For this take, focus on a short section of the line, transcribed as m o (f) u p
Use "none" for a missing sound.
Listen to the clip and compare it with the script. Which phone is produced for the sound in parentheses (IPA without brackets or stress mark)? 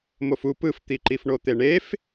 f